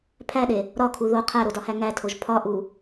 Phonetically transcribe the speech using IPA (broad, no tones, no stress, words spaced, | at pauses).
pʰæɗe | ɾɒkʰu ðo qʰæɾodɒhæ ŋætʰoʒ pʰɒʔu